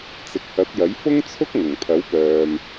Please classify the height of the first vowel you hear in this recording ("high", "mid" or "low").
high